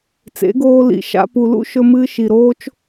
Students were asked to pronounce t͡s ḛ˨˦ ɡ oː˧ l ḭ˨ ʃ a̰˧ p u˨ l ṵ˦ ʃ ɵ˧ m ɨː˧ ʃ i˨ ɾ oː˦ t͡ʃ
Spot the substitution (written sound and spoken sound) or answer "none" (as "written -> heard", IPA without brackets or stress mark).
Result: none